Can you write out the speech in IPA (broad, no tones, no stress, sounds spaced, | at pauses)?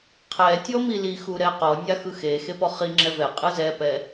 qʰ ɛ tʲ ɔ m i l i x u ɾ ɛ q ɔ nʲ a x ɯ x e x e p ɔ χ i ŋ͡ǁ ɛ v ɛ qʼ ɯ z ɛ p ɛ